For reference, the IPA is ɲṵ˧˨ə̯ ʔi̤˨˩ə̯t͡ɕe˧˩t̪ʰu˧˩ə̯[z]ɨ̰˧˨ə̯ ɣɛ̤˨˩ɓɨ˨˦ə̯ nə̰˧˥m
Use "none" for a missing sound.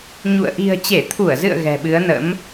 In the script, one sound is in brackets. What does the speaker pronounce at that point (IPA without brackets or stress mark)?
z